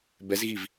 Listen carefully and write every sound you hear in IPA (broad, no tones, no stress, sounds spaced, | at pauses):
b ɛ z ɣ i v